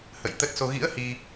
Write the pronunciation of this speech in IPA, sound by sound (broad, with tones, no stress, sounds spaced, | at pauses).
h ə̰˧˨ j t̪ ə˦˥ t̚ s o˧ ɣ ḭ˧˥ ə̯ h i˧